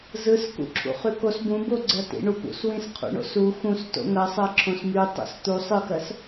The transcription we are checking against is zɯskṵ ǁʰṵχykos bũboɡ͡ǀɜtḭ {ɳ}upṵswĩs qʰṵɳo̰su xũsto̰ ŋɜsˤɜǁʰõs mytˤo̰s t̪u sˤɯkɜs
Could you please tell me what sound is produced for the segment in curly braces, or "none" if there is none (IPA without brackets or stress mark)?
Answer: ɳ